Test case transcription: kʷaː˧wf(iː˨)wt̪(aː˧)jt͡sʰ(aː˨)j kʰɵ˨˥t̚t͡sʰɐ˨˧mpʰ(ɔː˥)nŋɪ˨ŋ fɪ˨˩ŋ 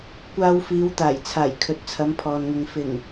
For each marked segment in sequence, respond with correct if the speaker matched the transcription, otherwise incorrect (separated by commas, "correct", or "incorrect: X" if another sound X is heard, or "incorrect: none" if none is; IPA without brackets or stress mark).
incorrect: iː˨˧, incorrect: aː˨˩, incorrect: aː˨˩, incorrect: ɔː˨